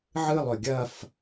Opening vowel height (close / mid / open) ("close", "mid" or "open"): close